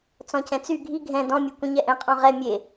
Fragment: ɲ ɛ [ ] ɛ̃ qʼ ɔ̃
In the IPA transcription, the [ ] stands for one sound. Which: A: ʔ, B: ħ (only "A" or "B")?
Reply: A